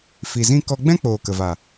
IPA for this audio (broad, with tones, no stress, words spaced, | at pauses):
fi˨zĩ˦ kɔ˧ɡ͡bɛ̃˦k͡poː˨ kə˨va˨